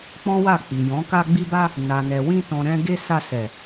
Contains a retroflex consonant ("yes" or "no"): no